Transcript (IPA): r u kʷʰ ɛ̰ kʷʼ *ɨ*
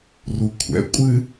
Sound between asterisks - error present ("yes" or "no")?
no